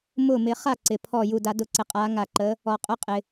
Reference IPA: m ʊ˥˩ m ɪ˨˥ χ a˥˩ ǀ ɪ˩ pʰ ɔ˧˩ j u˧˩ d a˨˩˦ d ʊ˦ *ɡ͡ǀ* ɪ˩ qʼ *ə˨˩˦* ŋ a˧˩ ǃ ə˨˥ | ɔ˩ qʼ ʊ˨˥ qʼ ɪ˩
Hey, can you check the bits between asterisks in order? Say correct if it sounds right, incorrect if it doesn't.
incorrect: ǀ, incorrect: a˨˩˦

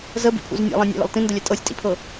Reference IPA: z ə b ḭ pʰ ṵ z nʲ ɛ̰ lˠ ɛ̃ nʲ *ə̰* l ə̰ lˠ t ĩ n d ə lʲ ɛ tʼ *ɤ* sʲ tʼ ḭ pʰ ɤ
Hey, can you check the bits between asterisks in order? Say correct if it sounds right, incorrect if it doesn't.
incorrect: ɛ̰, correct

